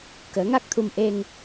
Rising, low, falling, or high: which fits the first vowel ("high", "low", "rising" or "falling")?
rising